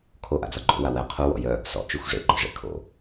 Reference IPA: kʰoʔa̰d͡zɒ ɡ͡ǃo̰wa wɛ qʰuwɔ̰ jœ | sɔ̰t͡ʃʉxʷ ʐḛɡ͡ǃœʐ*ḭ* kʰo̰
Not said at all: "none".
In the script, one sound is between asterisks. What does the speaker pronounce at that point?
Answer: ḛ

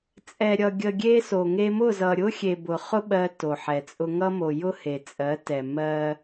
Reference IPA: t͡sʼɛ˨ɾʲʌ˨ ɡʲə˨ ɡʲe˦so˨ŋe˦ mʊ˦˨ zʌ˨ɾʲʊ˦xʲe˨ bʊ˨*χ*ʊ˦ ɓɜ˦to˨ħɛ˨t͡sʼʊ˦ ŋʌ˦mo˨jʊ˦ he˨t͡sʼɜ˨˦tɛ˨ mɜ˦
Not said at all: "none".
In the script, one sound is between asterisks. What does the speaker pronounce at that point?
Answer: χ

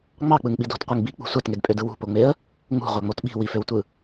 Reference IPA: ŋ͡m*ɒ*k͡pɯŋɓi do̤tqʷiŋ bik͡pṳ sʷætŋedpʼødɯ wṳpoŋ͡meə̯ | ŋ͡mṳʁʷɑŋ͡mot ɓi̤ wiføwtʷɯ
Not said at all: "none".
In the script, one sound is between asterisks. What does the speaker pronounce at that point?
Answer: ɑ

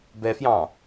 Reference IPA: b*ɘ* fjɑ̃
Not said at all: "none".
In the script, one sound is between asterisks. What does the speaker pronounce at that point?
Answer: ɛ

